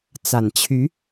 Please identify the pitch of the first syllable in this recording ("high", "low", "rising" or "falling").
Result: low